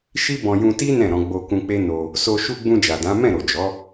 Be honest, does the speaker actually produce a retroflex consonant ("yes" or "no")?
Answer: no